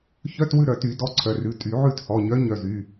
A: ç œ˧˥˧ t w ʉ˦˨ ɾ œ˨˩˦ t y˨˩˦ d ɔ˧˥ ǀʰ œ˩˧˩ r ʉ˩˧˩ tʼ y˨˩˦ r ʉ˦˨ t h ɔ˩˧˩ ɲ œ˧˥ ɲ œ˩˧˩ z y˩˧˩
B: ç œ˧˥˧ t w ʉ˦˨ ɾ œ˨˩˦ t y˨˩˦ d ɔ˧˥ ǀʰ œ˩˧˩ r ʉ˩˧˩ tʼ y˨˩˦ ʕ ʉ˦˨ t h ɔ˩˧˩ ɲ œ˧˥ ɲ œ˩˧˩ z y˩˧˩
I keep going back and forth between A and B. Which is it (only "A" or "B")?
B